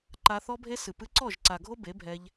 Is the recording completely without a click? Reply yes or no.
no